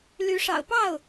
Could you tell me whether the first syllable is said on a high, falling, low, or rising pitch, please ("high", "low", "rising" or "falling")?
rising